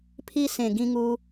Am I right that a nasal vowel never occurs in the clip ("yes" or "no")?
no